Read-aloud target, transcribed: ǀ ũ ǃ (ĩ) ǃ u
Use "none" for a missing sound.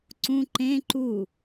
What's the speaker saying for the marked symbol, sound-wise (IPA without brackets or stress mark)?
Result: ẽ